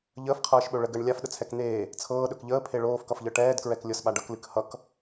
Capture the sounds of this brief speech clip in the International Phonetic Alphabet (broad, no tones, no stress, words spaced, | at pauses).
ʎəːfqʰɤːʃɓɵ ɭəɡəːɳ lʲafɗət͡sʰɛk n̪eː | t͡sʰɤːɗɵk ʎəːpʰe ɭoːfkʌfʎɤ ʈɛːdkɹɛklʲɤsɓa ɖʌklɨk hʌk